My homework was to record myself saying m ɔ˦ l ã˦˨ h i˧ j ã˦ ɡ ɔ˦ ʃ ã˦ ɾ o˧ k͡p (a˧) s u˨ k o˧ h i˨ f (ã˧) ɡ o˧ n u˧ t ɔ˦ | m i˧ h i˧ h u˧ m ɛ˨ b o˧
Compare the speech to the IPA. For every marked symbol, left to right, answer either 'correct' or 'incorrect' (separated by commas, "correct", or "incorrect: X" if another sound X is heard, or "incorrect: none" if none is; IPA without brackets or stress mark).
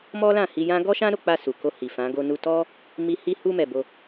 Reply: correct, incorrect: ã˨˦